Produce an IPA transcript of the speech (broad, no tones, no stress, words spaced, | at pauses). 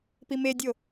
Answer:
pimedʲo